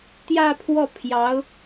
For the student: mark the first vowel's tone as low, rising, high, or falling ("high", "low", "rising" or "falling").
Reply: falling